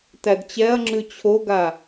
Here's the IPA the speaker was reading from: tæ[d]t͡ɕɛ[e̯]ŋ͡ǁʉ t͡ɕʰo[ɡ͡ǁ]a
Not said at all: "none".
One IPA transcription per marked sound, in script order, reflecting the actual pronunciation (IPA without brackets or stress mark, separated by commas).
d, ɐ̯, ɡ